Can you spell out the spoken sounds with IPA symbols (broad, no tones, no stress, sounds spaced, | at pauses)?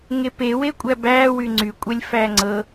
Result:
ŋ e p e w e kʷʼ æ b æː w y ŋ͡ǀ y kʷʼ ɛ lʲ f æ ŋ͡ǀ ɤ